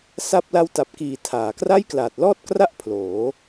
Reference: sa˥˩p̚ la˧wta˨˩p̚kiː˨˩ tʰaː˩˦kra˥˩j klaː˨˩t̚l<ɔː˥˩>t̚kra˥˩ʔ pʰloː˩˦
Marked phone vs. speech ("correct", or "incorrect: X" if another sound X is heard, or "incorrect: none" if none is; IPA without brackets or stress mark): correct